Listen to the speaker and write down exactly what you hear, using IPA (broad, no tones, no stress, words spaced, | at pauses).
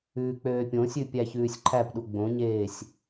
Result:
ʉːk͡pøːpʲõsʲʉ pʲæçʉːsʲǃʰæpɗu ɡ͡bõɲeːsʲ